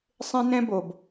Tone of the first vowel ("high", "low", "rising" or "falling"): high